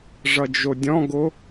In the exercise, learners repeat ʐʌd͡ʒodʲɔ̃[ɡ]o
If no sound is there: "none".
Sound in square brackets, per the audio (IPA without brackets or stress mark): ɡ